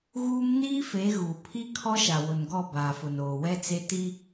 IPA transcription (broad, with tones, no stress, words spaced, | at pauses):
ɣuː˦m niː˦fe˨˦ ɣu˨ pʰi˦ kʰɔ˦ʃa˨wʊ˨nɡɔ˦˨ baː˨fʊ˨n oː˨wɛ˦t͡se˦ ti˦